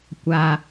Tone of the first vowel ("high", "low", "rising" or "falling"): low